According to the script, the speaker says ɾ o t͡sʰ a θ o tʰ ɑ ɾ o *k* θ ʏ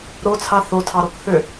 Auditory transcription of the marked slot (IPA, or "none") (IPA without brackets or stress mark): k